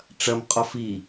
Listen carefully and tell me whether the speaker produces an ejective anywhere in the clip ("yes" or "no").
yes